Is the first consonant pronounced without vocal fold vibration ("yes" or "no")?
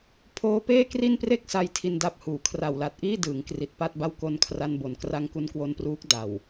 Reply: yes